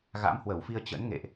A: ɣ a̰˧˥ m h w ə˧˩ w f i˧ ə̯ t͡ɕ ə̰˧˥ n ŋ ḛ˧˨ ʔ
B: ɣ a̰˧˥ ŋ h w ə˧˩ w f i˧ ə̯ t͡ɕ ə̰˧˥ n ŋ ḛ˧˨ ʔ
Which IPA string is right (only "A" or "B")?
A